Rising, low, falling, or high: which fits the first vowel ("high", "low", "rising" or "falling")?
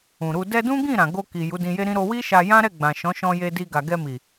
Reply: low